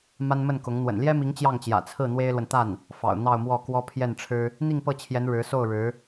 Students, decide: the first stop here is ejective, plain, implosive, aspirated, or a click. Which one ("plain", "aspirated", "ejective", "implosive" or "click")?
plain